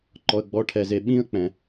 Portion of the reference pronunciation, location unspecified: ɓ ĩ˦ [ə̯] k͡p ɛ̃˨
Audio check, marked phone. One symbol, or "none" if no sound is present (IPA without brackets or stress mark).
ə̯